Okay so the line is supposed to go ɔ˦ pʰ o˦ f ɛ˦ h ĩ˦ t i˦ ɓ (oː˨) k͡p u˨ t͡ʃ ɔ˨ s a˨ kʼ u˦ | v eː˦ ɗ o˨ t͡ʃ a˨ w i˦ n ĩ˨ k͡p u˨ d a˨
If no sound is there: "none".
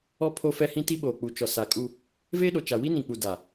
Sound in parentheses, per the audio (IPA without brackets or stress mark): oː˨